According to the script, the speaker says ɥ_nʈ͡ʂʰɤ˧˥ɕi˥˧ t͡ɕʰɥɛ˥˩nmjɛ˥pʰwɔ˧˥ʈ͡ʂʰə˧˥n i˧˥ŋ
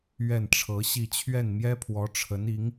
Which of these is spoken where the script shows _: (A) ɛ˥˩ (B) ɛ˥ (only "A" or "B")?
A